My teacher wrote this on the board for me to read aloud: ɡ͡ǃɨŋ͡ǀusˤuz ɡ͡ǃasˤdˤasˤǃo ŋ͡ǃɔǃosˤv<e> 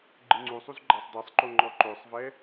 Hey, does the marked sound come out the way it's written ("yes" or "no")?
no